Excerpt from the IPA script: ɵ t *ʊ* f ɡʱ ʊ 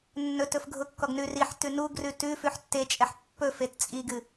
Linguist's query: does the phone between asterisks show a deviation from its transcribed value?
yes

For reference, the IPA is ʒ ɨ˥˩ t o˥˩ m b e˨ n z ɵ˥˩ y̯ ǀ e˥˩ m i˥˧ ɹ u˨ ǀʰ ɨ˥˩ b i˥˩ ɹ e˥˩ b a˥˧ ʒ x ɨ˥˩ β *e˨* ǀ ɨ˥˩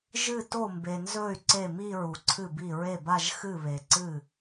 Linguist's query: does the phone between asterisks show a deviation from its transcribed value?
no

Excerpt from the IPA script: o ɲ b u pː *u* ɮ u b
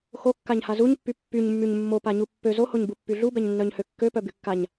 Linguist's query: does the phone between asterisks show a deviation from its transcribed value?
yes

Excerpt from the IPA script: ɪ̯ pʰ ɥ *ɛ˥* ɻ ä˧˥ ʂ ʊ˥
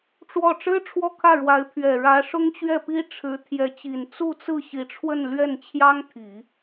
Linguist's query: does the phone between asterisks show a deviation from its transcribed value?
yes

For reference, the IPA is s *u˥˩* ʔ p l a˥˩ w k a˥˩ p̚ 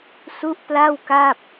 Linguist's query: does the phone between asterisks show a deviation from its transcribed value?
yes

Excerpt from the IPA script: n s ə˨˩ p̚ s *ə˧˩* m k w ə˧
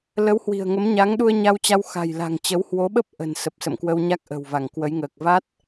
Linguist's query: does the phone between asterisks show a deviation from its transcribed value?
yes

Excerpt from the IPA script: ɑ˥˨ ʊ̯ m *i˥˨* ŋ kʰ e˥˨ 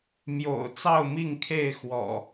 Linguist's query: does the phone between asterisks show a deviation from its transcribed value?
no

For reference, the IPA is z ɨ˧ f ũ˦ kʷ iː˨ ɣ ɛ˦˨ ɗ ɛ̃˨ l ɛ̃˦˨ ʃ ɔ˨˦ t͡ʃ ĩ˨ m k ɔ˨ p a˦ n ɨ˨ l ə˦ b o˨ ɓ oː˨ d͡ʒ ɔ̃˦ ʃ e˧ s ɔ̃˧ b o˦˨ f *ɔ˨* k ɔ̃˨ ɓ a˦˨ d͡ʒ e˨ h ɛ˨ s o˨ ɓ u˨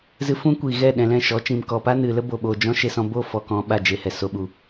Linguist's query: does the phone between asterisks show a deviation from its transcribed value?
no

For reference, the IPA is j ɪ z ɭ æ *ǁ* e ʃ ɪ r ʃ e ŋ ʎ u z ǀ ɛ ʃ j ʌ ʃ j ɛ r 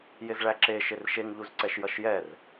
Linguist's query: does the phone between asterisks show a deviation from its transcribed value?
no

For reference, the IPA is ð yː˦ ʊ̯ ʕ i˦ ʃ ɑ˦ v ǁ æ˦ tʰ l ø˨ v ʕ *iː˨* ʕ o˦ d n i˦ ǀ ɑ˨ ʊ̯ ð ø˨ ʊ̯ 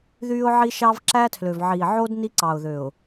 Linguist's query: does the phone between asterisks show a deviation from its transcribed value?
no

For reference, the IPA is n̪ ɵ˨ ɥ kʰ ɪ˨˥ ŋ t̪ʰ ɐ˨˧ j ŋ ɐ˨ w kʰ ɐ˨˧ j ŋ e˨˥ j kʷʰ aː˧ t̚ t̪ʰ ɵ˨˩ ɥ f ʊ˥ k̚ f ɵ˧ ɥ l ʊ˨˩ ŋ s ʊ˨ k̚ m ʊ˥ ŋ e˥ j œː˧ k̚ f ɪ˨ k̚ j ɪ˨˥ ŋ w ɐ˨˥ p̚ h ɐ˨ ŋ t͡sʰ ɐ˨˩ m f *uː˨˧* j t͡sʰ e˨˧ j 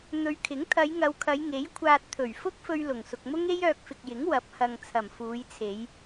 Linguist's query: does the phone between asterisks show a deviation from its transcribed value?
no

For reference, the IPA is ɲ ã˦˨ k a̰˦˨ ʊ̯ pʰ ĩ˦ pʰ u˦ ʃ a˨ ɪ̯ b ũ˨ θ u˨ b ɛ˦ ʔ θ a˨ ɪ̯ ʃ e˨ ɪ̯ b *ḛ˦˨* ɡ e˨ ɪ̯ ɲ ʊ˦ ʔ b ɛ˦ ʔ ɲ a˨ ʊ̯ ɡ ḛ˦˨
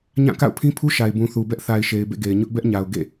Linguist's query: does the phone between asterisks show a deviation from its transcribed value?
no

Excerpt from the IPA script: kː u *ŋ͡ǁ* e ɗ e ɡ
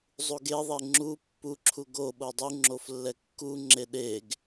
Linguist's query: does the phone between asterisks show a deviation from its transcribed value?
no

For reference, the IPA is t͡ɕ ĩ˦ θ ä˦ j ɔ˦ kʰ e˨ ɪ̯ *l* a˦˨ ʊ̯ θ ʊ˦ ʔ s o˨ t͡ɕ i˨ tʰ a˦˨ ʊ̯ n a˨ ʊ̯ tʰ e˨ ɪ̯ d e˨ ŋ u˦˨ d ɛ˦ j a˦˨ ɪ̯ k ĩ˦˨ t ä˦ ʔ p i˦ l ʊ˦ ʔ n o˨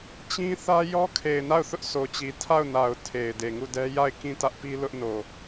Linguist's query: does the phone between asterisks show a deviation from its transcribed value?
yes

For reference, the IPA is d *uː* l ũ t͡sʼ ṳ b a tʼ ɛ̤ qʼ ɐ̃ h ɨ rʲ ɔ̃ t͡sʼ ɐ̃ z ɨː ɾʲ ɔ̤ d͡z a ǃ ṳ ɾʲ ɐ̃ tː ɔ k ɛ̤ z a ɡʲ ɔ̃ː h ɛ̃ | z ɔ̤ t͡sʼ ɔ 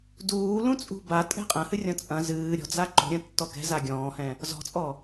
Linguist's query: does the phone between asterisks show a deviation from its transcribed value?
no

